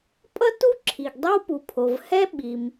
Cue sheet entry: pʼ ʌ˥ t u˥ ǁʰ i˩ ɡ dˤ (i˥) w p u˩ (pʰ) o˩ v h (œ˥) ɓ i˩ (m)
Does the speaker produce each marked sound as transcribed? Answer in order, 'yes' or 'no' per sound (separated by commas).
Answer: no, yes, no, yes